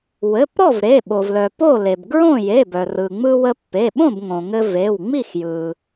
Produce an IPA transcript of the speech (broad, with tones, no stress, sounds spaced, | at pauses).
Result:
w ɘ˩˧˩ p ɾ ɔ˥˨ v ɾ e˩˧˩ ɓ o˩ v l œ˩ p o˥˨ l e˩ b ɡ ɹ õ˥˨ j e˩˧˩ b œ˩ r ɯ˩ ŋ͡m ɯ˧ w ə˧ pː e˩˧˩ ɓ õ˥˨ b ŋ õ˩ ŋ ɘ˧ v e˩˧˩ w ŋ͡m i˥˨ x j ɯ˩